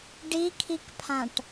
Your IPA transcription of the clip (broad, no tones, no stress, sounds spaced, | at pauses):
ɖ i kʰ i k pʰ ã ʈ